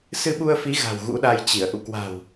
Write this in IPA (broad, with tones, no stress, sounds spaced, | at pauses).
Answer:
s ɨ˧ ɓ u˧ ə̯ f i˨˦ ɣ a̤˨˩ w ɣ ṵ˧˥ ɗ a˧ j t͡ɕ i˧˩ ə̯ ʔ ṵ˧˨ k w a̤˨˩ w